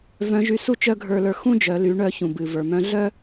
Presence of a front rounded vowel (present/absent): present